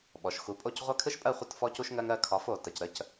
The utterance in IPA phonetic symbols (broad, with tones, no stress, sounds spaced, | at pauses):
ɓ ɔ˩ ʃ x u˩˥ pʼ o˥˩ c ʁʷ a˥ kʰ ɯ˥ ʃ pʼ ɜ˥˩ χʷ ə˥˩ t f ɔ˧ c u˧ ʃ ŋ ɜ˧ ŋ ɜ˧ kʰ ɒ˩˥ f o˩ t ə˩ c ɾ ə˧ c